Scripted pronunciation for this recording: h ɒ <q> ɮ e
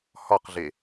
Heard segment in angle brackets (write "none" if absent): q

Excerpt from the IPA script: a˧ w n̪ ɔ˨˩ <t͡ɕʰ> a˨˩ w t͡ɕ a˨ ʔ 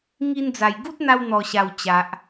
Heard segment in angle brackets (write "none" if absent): ɕ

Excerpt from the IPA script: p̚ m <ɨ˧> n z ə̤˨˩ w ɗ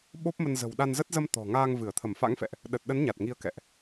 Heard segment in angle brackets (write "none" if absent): ə˧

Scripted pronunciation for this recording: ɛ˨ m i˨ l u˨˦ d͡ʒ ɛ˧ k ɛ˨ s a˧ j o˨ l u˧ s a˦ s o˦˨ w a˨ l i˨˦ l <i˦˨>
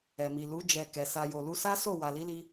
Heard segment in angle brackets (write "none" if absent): i˧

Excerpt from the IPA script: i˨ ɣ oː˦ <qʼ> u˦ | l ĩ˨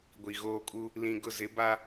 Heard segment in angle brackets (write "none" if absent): kʼ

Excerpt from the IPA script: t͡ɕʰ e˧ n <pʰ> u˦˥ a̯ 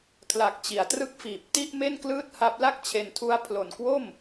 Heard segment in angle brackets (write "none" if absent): tʰ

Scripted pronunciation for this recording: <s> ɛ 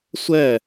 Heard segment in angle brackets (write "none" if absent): sʷ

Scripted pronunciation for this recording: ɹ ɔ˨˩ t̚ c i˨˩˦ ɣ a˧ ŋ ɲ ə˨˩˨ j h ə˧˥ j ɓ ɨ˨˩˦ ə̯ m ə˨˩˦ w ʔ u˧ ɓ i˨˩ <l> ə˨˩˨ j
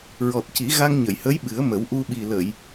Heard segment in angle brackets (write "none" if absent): l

